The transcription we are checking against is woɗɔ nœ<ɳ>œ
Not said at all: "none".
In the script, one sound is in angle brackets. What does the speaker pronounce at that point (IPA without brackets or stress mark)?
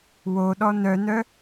n